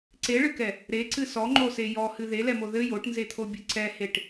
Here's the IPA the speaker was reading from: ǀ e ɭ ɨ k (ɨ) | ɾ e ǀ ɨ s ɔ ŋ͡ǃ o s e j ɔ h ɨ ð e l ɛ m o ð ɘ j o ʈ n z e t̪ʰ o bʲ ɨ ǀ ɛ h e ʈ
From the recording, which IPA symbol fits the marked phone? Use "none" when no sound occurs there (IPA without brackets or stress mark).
ɛ